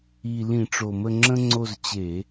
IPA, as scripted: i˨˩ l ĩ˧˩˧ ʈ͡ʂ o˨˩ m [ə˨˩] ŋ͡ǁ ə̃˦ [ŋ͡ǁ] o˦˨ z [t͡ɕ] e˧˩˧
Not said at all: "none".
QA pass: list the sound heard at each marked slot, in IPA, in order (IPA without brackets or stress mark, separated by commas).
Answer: ə˦˨, ŋ͡ǀ, t͡ɕ